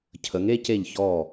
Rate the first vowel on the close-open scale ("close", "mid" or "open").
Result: mid